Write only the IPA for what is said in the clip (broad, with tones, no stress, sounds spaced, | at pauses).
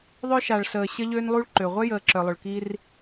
ðˤ œ˦ ʃ a˩ ɭ s əː˩ ɕ ə˦ ʎ øː˦ n lˠ u˦ ɭ ǃ ø˩ ʁʷ œ˥ j əː˨ ǁ œ˩ lˠ ʊ˩ ɭ k i˦ r